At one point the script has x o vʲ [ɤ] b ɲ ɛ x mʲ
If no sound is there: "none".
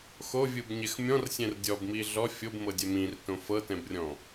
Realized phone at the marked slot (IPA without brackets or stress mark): ɯ